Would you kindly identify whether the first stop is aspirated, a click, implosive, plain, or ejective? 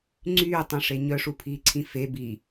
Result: click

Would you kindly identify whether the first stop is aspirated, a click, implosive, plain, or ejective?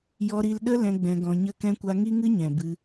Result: implosive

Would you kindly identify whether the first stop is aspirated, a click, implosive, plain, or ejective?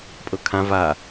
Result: ejective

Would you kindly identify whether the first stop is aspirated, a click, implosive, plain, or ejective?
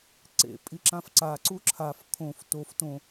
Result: click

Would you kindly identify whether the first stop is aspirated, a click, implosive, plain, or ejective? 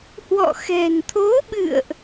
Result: aspirated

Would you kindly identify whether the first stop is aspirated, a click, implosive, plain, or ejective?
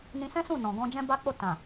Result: plain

